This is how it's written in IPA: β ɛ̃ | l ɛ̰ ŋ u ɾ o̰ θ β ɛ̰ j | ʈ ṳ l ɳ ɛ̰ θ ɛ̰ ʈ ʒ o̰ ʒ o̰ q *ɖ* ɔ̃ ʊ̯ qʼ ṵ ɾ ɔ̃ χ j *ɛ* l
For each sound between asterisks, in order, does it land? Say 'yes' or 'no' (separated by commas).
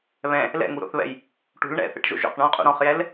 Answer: no, yes